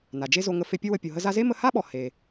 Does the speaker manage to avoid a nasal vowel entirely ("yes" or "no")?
yes